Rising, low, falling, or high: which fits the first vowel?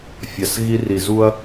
low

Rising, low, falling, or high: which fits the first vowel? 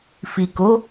low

